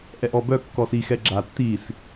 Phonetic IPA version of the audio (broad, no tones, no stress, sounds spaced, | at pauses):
ʔ ɛ ʔ ɔ b œ kː ɔ s i x ɛ ɡ͡ǁ a tː i s